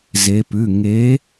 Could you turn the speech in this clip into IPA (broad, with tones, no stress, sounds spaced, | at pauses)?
z e˩˧ p ʉ˩˧˩ ŋ e˨˥